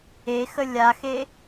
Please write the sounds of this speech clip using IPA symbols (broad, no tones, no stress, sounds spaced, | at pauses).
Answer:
e x ə lʲ a x e